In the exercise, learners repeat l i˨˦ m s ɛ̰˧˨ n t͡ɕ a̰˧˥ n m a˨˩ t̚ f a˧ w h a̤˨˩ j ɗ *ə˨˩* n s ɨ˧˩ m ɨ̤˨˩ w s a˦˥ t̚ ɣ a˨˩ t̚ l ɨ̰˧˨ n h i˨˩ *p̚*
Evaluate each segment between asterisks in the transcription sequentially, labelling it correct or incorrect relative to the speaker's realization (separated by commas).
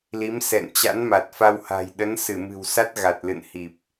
incorrect, correct